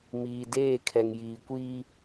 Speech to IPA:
m iː˨ d eː˦˨ kʰ ɛ˨ ŋ j iː˨ kʷ iː˦

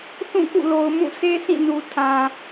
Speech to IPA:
θ ũ˦˨ k ṵ˦˨ l o˨ ʊ̯ m ũ˦˨ s e˦ s ĩ˦˨ n u˨ tʰ ã˨

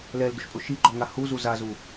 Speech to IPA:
l ɛ l d ʊ ʃ pʼ ʊ ʃ i ɡ͡ǃ ɔ ŋ a h u z u z a z u

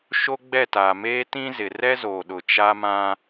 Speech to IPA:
ʃ o˦ ɡ͡b ɛ˦˨ t aː˨ m eː˦ t ĩ˦ z ɪ˨ r ɛ˦ z oː˨ ɗ ʊ˨ t͡ʃ a˦ m ã˦

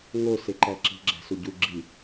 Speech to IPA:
ŋ o s e ǃ æ ǁ i̤ ɡ͡ǁ æ̤ s u ɟ u ɡ͡ǁ i

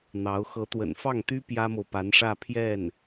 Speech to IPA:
n̪ ɑ˧˥ ʊ̯ x ɤ˧˥ t̪ w ə̰˨˩ n f ɑ˥˩ ŋ t̪ y˥ p j ä˥ m o˨ ʊ̯ p a˧˥ n ʂ ä˥˧ pʰ j ɛ˥˩ n

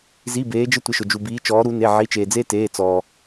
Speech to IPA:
z i˩˧˩ b eː˩˧ d͡ʒ ɪ˦ tʷ ɪ˩˧˩ ʃ ʊ˩ d͡ʒ u˩ b iː˩˧ t͡ʃ ɔː˩˧ ɾ u˩˧ n e˩˧˩ ʕ i˩˧˩ t͡ʃ eː˩ d͡z eː˦ t eː˩˧˩ t͡s ɔː˩

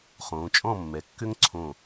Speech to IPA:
χ õː˩˧ t͡ʃʼ ɔ̃˥˨ mː ɛ˩˧ kː ʏ˦ ŋ ǀʰ õ˧˩

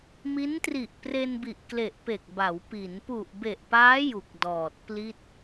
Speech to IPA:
m i˦˥ n t r i˨˩ ʔ p r e˧ n b i˨˩ ʔ k l e˨˩ ʔ p e˨˩ k̚ b a˩˦ w p i˩˦ n p u˨˩ ʔ b e˨˩ ʔ p aː˦˥ j u˨˩ k̚ d ɔː˨˩ t̚ p l i˥˩ t̚

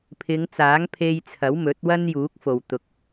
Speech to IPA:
pʰ ɪ˨˧ ŋ t͡s aː˨˥ ŋ pʰ e˧ j t͡sʰ ɐ˨˥ w m ɵ˨˥ t̚ w ɐ˥ n j uː˨˥ k̚ f o˨ w t̪ ʊ˧ k̚

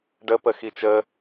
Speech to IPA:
ɖ ə p ə x i t͡ʃ ə

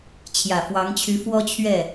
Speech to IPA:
t͡ɕʰ j ä˨˩ f w ɑ˧˥ ŋ t͡ɕʰ y˧˥ f w ɔ˥ t͡ɕʰ ɥ ɛ˥˩

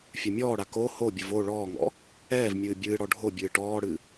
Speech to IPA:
fʲ a mʲ ɔː ɽ a k o h o bʲ ɨ v o ɭ ɔː ŋ ɔ̰ | ɛː v mʲ ɨː bʲ ɨː ɽ ɔ ɖʱ o bʲ ɨː ʈ ɔː ɽ ɨ

